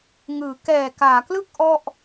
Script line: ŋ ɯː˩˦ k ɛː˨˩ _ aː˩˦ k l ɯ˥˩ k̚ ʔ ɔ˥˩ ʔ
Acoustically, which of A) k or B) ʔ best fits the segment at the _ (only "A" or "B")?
A